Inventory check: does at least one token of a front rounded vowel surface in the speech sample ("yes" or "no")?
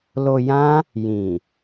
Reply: no